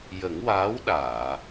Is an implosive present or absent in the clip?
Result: present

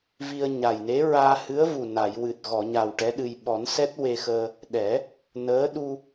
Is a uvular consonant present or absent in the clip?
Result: absent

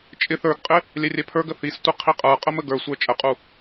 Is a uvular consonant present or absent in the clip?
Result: present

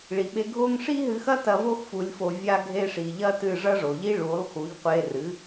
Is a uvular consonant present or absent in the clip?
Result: present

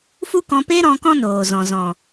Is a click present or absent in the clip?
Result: absent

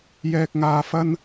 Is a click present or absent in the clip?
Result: absent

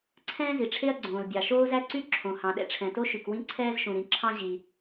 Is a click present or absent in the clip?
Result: present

